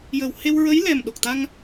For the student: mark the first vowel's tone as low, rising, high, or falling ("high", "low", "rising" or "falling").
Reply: low